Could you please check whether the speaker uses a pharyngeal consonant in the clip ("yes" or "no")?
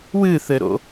no